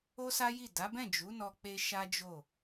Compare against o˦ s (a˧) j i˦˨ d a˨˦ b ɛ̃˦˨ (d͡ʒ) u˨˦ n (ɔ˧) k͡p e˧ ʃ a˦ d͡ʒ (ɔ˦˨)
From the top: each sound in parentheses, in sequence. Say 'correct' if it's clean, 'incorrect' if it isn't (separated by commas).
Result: incorrect, correct, correct, incorrect